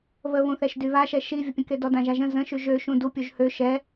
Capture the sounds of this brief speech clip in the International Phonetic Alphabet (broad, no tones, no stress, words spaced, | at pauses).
βəβũθɛʃ dyβaʃɛ ʃivʲəpʲə̃ke dɔdãʒaʒə̃ zə̃ʃy ʒø ʃũdupʲuʒ hø ʃɛ